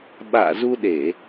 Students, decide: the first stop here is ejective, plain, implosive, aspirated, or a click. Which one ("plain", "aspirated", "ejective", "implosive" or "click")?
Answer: implosive